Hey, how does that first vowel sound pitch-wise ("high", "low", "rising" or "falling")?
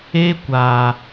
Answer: high